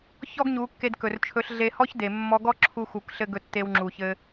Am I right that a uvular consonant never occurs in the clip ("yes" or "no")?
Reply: yes